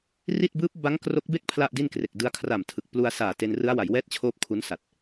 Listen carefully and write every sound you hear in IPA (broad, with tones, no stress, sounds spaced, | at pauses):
r i˥˩ t̚ b ɯː˦˥ p̚ b a˦˥ ŋ k r o˦˥ k̚ b e˥˩ k̚ pʰ l a˥˩ ʔ d i˥˩ n k r e˨˩ k̚ d ɯ˧ a̯ kʰ r a˨˩ m tʰ ɯ˨˩ k̚ p l u˧ a̯ s aː˨˩ t e˧ n r ɯ˦˥ a̯ w a˩˦ j w ɛː˥˩ t̚ t͡ɕʰ oː˥˩ p̚ kʰ u˦˥ n s a˨˩ t̚